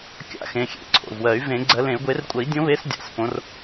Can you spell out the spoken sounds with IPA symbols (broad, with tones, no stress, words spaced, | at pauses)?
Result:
kʲa̰˨˦ xẽ˩˧˩xʲḛ˨˦ǀʰo̰˩˧˩vwɜ˨˩˦y̯ vẽ˨˩˦ɡ͡ǀɜ˨˩˦lẽ˨˩˦y̯ ɡʷe˨˩˦rkʷʼə˨˩˦i̯dʲõ˨˦βe˨˦s dʲa̰˩˧˩s põ˨˦r